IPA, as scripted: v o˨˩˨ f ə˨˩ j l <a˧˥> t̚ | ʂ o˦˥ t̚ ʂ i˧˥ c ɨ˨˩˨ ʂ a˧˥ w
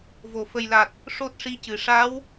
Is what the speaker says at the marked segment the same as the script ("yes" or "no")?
no